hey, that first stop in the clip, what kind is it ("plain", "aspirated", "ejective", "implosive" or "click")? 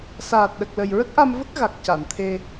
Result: plain